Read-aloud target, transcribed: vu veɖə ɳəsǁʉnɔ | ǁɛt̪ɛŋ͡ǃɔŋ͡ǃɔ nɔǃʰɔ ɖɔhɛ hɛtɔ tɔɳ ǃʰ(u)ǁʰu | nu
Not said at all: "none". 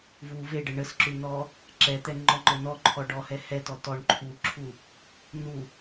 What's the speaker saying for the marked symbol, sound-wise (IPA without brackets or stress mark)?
u